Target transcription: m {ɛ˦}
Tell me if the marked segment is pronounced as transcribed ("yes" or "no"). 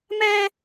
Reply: no